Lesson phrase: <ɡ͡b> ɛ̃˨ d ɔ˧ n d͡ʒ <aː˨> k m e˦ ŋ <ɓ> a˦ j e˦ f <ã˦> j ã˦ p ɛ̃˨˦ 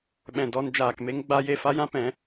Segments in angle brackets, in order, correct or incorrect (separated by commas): incorrect, correct, incorrect, incorrect